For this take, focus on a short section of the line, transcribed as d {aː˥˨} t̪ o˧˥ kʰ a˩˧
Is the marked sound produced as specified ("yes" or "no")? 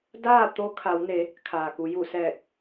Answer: yes